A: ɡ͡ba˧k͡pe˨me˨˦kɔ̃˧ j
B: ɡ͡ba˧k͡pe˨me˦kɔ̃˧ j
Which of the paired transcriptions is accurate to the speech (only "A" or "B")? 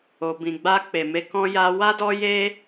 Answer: A